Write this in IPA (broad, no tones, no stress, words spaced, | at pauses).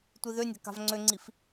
tʷiðønʲa̤ ka̤vŋ͡ǀøŋ͡ǀif